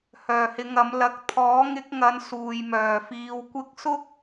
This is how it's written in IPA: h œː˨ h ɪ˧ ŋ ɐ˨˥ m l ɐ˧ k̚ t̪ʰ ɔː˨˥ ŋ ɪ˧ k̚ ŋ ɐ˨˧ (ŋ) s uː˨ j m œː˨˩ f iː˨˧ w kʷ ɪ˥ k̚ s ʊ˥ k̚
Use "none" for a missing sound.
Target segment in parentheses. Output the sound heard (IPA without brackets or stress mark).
n